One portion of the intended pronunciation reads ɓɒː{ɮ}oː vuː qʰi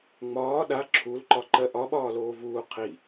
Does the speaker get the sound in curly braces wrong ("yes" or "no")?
yes